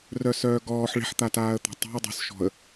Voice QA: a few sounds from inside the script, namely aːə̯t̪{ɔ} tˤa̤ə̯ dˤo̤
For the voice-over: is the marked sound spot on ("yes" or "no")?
no